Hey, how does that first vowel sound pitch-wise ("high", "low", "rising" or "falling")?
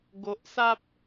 low